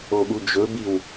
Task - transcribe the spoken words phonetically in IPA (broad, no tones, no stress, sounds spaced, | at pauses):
o ɠ u d͡ʒ ɵ b i w